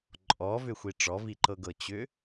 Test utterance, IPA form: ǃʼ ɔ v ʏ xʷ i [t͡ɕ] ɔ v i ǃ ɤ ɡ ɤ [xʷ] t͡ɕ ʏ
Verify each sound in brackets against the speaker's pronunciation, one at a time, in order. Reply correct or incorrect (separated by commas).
incorrect, incorrect